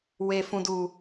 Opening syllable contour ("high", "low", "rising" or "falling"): low